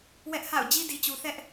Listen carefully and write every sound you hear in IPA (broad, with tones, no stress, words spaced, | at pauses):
wɛ˦ʔha̰˦˨ʊ̯ d͡ʑi˦di˨t͡ɕu˨ θɛ˦ʔ